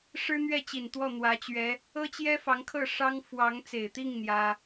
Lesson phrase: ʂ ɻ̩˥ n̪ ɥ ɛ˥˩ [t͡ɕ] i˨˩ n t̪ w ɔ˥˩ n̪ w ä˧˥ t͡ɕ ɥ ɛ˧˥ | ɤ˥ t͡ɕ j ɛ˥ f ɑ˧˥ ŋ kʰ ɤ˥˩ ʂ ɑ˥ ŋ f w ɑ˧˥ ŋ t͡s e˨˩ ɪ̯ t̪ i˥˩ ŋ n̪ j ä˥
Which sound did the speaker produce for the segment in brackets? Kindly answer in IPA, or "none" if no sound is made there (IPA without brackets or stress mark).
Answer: t͡ɕ